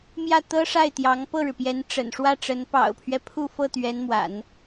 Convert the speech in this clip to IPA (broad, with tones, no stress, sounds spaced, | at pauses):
m j ä˥˩ t̪ ɤ˥ ʂ a˥˩ ɪ̯ t̪ j ɑ˧˥ ŋ p ɤ˥˩ ɻ ɻ̩˩ p j ɛ˧˥ n ʈ͡ʂ ə̰˨˩ n ʂ w ä˥˩ ʈ͡ʂ ə˧˥ n p ɑ̰˨˩ ʊ̯ pʰ ɥ ɛ˦ pʰ u˥˧ f ɤ˥˩ t̪ ɥ ɛ˧˥ n m w a̰˨˩˦ n